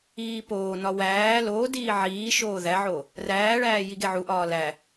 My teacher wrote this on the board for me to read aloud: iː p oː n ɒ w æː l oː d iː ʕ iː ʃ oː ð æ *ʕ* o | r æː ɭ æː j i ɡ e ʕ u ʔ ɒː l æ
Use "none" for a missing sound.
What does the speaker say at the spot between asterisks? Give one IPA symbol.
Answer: ʕ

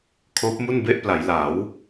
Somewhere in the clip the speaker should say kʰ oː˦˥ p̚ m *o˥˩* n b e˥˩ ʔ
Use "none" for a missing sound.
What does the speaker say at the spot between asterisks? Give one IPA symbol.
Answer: u˥˩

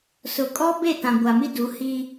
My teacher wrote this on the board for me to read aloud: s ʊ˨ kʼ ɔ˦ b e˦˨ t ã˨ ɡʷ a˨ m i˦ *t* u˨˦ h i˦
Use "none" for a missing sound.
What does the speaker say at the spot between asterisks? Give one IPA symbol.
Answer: d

